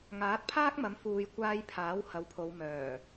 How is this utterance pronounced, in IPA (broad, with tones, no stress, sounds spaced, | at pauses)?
ŋ aː˨˥ t̚ pʰ aː˥ k̚ m ɐ˨˥ m f uː˨ j kʷ aː˧ j pʰ aː˨˥ w h ɐ˨˧ w pʰ o˨˧ w m œː˨˩